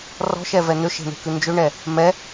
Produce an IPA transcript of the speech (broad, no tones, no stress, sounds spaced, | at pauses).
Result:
r ɔ̤ ʃ ɛ v ɛ n̪ ø ʃ e̤ n̪ e̤ k ʉ n d͡ʒ ø ɳ ɛ | m ɛ